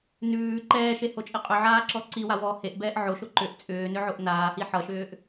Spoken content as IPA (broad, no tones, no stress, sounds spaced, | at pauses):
n ʉː ǃ ɛː ʃ e h o t͡ʃʼ i qʼ ʏ ʕ aː ǁ ɔ ǀ i w a w ɔː h e ʔ b ɛː ʔ ʕ o ʃ o ǃ ʏ ʔ t͡sʼ ʏː n ʏ ʕ o ʔ n aː h i ħ ʌ ʃ ʏː ʔ